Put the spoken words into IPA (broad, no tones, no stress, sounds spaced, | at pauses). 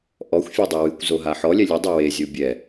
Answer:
ʔ ɔ xʷ fʲ e dˤ ə w ɨ kʷ z o ɦ a ħ ɔ lʲ ɛ lʲ ə dˤ ə w e zʲ o bʲ ɛ